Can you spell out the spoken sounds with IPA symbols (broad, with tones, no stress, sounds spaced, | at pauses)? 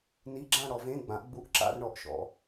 n i˧˥˧ ɡ͡ǁ ã˥˧ ɽ ɔ˩˧ v ẽ˧˥˧ ɡ͡b ã˩˥ ʔ ɡ͡b u˧˥˧ ʔ ǁ a̰˥˧ r ɳ ɔ˩˥ ʔ ʃ ɔ̰˩˧